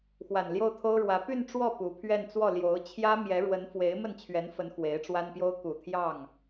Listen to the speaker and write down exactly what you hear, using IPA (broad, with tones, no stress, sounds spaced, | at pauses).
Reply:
x w a˨˩ n l j o˥˩ ʊ̯ t̪ʰ o˥ ʊ̯ ɻ w ä˧˥ p y˥˧ n ʈ͡ʂ w ɔ˥˩ p u˧˥ pʰ ɥ ɛ˥˧ n t͡s w ɔ˥˩ l j o˧˥ ʊ̯ t͡ɕʰ j ä˥ m j ɛ˧˥ ɻ w ə˧˥ n f w e˧˥ ɪ̯ m ə˥˩ n t͡ɕʰ ɥ ɛ˧˥ n f ə˧˥ n x w e˧˥ ɪ̯ ʈ͡ʂ w a˥ n p j o˥ ʊ̯ k u˨˩ t̪ʰ j ɑ˥˩ ŋ